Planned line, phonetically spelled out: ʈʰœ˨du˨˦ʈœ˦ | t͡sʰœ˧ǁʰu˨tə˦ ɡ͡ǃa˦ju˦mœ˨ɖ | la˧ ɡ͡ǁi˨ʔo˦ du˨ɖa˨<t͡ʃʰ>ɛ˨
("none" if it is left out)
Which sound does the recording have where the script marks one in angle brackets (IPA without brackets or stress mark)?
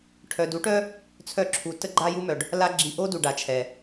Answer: t͡ʃʰ